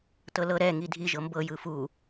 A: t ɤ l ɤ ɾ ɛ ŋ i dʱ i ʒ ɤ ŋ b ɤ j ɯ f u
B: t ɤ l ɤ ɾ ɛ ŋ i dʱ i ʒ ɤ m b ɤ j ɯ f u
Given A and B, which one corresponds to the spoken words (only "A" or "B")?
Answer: B